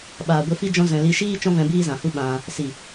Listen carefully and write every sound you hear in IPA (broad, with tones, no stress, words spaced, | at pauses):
ɓaː˨ɡʷe˧fi˦ d͡ʒɔ̃˦ zɛ̃˧ li˧ʃiː˦ t͡ʃɔ̃˦vɛ̃˧ biː˦zã˨hu˦ ɓã˧ | si˨